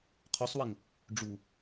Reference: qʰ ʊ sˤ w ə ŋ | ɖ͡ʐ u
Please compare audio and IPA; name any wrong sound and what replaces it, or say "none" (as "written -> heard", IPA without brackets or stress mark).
ʊ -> u